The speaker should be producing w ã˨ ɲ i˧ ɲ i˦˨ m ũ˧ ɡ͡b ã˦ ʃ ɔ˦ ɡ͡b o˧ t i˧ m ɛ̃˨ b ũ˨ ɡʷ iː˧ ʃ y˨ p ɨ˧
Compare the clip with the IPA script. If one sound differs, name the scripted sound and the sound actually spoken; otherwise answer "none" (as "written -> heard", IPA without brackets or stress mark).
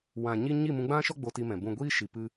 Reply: y˨ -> i˨